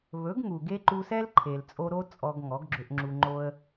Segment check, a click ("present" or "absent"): present